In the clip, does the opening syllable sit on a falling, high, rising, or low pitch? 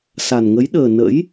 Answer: low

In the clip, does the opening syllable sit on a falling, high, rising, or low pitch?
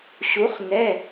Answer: rising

